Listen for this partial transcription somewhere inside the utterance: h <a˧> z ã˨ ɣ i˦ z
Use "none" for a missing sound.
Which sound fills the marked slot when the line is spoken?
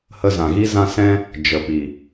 ə˧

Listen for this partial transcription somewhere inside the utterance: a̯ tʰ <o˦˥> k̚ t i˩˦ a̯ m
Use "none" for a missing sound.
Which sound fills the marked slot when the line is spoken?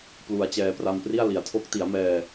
o˦˥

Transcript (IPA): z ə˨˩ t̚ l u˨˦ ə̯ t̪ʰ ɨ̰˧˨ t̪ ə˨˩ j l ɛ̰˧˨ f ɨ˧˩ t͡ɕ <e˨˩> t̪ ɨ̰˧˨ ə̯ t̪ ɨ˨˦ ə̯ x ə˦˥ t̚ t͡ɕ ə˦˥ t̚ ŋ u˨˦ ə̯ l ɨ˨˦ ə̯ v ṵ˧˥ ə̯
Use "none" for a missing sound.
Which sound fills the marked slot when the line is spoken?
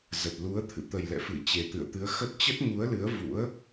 e˨˩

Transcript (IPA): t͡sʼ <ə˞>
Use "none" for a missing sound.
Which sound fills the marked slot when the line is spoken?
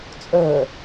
ə˞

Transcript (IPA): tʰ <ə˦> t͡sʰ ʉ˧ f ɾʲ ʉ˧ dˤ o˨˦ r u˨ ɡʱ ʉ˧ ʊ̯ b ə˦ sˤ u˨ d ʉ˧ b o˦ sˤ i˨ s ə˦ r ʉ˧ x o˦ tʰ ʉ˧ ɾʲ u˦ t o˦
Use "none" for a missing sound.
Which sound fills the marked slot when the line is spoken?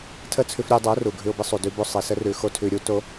ə˦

